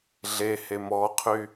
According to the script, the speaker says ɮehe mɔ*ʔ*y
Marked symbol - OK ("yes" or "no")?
no